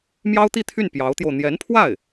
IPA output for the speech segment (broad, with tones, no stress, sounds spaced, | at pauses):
m j ɑ˥ ʊ̯ t̪ i˥˧ t̪ʰ y˥˩ n p j ɑ˧˥ ʊ̯ t̪ j o˧ ʊ̯ n̪ j ɛ˧˥ n pʰ w a˥˩ ɪ̯